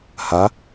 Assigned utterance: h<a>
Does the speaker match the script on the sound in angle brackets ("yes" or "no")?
yes